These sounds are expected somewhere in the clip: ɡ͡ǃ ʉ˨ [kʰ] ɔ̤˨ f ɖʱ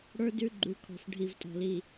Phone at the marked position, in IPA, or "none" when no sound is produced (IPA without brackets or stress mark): kʰ